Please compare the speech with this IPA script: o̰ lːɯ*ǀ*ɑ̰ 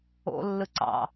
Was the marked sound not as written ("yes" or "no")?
no